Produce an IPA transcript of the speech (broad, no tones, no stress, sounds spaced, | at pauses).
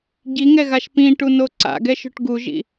ɟ i ŋ ɛ ɣ a ʃ p ĩ ʈ u n o ǀ a̰ ɡ ɛ ʃ o̤ ʈ ɡ u ʒ ḭ